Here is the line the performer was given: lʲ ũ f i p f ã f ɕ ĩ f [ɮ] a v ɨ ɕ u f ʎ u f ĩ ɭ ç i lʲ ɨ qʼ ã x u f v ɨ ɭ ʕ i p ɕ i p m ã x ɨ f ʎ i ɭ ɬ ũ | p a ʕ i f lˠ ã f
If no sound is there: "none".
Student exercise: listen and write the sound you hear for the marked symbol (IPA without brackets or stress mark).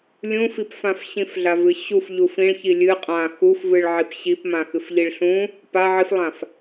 ɮ